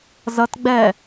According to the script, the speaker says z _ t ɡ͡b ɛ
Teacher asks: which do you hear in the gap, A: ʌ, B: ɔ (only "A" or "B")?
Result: A